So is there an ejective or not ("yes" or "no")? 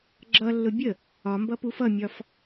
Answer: no